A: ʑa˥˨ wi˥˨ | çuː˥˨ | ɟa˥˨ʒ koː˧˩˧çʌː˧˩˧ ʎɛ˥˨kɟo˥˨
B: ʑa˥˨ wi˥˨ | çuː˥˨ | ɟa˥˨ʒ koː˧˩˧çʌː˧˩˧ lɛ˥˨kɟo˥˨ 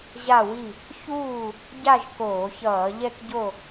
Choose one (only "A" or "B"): A